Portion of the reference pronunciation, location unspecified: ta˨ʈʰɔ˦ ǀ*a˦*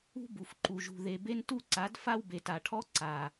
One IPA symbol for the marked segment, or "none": a˨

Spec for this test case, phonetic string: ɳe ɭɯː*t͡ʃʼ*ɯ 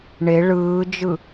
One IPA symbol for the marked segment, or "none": d͡ʒ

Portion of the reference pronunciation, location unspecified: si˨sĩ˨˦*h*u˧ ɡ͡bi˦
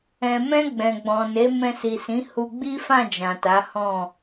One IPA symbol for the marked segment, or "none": h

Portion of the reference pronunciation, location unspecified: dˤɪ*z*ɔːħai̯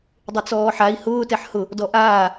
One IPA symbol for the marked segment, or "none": t͡s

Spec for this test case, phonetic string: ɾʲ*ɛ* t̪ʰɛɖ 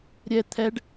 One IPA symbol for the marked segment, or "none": ɛ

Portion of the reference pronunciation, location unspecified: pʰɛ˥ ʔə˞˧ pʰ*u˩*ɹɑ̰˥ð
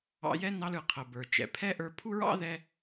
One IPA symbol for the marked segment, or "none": u˥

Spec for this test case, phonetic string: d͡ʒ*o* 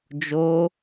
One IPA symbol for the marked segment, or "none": o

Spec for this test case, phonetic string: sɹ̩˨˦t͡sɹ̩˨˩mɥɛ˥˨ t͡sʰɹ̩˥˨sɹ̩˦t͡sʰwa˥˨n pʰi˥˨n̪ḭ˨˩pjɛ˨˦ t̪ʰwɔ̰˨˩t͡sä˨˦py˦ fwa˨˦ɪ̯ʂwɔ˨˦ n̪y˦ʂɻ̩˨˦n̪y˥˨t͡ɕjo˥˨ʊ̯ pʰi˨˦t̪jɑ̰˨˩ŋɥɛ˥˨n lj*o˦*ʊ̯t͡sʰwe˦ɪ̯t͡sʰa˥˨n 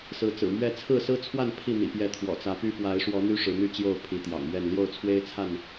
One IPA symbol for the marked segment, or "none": o˥˨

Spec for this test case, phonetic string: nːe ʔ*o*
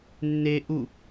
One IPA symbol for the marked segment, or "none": u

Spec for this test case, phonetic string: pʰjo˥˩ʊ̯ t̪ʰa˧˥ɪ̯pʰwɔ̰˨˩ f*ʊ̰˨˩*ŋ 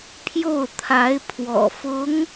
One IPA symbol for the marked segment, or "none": ʊ˧˥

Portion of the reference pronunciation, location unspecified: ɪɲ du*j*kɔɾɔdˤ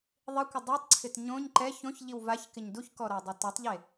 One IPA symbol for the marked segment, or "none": ç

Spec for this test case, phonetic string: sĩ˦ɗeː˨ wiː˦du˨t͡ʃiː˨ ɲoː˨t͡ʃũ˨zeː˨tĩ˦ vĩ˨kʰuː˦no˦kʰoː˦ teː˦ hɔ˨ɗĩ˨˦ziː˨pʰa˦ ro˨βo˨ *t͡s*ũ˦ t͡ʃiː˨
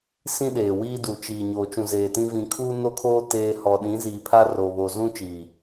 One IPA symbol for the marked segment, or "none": z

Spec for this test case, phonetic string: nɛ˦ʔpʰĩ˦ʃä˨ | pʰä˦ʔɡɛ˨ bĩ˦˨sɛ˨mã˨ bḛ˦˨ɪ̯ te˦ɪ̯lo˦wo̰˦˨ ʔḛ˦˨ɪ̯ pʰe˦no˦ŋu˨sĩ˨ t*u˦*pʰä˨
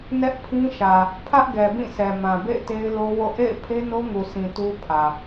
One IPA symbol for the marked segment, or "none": u˦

